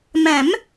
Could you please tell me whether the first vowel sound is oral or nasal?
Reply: nasal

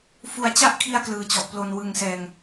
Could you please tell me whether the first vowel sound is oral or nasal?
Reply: oral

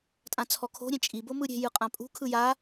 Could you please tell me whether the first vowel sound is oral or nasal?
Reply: nasal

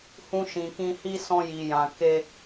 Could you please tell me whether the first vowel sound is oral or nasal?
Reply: nasal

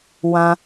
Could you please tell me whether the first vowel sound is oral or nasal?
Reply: nasal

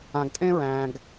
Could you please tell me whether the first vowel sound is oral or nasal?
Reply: nasal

